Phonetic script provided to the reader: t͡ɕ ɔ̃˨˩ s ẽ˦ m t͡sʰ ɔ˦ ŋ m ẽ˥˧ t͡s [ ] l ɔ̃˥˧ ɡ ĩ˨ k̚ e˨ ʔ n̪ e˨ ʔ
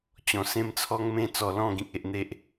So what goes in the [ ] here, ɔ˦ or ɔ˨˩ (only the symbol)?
ɔ˨˩